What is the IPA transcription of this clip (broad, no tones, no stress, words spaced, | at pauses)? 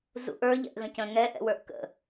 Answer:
zṵʔə˞ ʎɛ̰ʔɣə̃cə̃ ŋɛ ʔɛ̰wə˞ʔkə̰